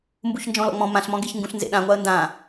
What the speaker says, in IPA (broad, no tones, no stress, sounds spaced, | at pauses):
m b u ç n d͡ʒ ɔ̃ l ɔ̰ ŋ͡m ɔ̃ m ã ɬ m ɔ̃ ɡ e ç ŋ ɡ ũ ɬ n z ḛ ɗ ã ŋʷ a ə̯ n d ã